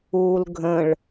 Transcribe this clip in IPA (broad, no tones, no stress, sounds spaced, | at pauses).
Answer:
uː l ɡʱ ə̃ ɭ